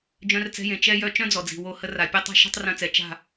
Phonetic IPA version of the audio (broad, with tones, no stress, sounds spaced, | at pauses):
d͡ʒ œ̃˧ r t͡s ɛ̤˧ j ẽ˨ t͡ʃ ɛ˧ j œ˧ t͡ʃ œ̃˦ d͡z ɔ˨ d͡z i̤˨ w o˧ h ə˧ r a˨ pʲ ɛ˦ tˤ ɛ̤˦ ʃ ɛ̤˦ tˤ r œ̃˧ t͡s ɛ˨ t͡ʃ a̤˦˨